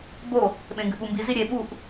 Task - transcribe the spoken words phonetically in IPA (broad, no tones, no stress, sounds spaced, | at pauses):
b o | ɓ ẽ ŋ ɡ ʉ ɓ u m b i z i ɾʲ e ɓ u ʔ